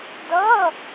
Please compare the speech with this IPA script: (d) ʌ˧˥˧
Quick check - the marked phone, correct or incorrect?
correct